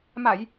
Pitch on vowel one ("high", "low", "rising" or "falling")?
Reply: low